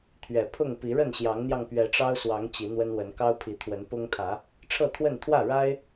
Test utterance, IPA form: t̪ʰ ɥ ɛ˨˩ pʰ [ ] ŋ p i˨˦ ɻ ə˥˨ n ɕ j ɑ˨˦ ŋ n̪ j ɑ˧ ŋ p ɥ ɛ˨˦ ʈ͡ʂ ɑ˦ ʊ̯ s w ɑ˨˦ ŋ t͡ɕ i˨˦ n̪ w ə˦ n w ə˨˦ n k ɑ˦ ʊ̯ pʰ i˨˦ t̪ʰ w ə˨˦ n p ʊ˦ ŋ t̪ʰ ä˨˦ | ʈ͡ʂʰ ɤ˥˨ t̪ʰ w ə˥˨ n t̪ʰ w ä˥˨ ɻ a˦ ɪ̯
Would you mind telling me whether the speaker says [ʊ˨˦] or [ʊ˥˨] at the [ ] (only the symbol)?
ʊ˥˨